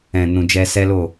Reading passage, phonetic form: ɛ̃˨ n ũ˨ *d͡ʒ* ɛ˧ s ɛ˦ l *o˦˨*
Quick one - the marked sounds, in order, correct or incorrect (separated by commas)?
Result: correct, correct